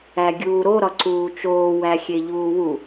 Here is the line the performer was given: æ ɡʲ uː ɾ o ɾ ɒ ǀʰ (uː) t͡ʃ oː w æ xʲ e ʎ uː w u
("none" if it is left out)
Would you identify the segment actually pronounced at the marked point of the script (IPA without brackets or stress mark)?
uː